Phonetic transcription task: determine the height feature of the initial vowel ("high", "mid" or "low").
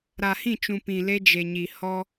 low